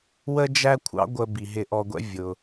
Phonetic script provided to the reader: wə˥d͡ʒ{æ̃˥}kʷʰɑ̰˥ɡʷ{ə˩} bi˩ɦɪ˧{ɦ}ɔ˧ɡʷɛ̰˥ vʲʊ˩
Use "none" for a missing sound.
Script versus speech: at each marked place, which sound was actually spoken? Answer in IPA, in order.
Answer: æ˥, ə˧, ʔ

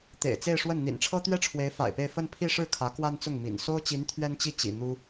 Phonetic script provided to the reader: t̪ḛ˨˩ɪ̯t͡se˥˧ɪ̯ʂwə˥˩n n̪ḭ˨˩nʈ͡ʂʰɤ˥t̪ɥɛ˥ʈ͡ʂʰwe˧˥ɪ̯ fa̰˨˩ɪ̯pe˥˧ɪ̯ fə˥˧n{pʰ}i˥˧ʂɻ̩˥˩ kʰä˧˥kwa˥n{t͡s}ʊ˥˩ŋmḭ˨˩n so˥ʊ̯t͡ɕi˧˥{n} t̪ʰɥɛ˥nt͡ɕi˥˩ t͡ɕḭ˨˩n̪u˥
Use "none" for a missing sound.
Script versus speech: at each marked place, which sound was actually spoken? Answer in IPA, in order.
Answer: pʰ, t͡s, n

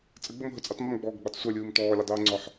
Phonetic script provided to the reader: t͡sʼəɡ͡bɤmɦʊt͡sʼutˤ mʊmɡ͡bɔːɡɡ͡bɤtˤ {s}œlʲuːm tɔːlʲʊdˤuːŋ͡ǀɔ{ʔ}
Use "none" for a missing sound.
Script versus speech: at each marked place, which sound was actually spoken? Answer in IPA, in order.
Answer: sʷ, ħ

